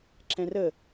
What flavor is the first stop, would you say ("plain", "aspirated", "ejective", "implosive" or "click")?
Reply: click